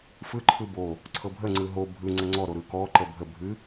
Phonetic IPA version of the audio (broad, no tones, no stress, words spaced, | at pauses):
fɯǃʰɯ bo | ǀʰɤbʱəŋ͡ǀɯ ɦo bʱɯ ŋ͡ǀəŋ͡ǀɔɾo ɾɯkɔǃə bʱə bʱɨ